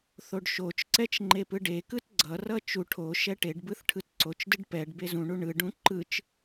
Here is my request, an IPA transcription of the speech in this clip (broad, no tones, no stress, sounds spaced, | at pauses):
θ o ɖ ʃ o t͡ʃ ǀ ɛ t͡ʃ ŋ͡ǃ e p ɯ ɖ e k ɯ t ɡ͡ǀ ʌ r ʌ t͡ʃ u ʈʰ o ʃ ɛ ʈ e ɖ b ɯ θ ʈʰ ɯ t ǀ o t͡ʃ d ɯ ɖ p ɛ ɖ b e z ũ ɳ u ɳ ɯ ɖ ũ ǃ ɯ t͡ʃ